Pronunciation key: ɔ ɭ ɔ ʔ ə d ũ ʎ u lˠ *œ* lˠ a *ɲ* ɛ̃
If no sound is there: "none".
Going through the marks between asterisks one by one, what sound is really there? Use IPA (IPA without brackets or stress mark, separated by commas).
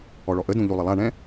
ə, ɳ